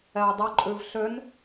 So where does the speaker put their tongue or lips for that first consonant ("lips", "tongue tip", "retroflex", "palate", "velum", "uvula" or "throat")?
palate